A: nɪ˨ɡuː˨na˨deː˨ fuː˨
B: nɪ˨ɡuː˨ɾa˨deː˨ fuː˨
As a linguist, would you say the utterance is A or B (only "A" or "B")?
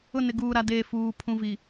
B